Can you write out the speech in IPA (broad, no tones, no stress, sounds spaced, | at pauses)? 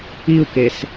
i u̯ k e s